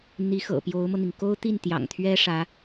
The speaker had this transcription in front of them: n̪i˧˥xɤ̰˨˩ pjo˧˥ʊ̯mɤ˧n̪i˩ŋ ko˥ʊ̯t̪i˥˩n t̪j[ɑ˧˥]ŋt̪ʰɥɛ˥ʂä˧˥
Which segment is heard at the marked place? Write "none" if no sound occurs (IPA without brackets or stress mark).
ɑ̰˨˩